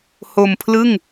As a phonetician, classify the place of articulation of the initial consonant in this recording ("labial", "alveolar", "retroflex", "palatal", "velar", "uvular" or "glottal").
glottal